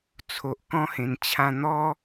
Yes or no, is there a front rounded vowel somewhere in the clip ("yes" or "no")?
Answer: no